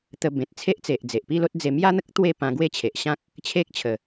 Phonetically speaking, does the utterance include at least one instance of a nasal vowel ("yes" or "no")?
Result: yes